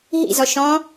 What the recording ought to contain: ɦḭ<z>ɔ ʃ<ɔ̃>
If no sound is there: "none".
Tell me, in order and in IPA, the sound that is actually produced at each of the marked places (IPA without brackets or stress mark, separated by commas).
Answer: z, ɔ̃